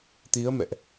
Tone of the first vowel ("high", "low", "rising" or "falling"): rising